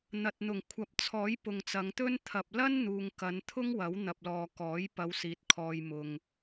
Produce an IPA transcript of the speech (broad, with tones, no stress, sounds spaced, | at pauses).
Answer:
n̪ ɐ˨ t̚ n̪ ʊ˨˩ ŋ kʷʰ ɐ˨ p̚ t͡sʰ ɔː˨˥ j p ʊ˨ ŋ t͡s ɐ˨˧ ŋ t̪ ɵ˥ n t̪ʰ ɐ˨ p̚ l ɐ˥ n n̪ uː˨ ŋ k ɐ˨˧ n t̪ʰ ʊ˥ ŋ w ɐ˨˥ w n̪ ɐ˨ p̚ l ɔː˨ k ɔː˨˥ j p ɐ˨˧ w s iː˨ t̚ kʰ ɔː˧ j m ʊ˨ ŋ